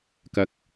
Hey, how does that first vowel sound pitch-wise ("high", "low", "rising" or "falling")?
high